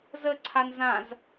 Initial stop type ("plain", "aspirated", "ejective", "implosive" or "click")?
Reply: click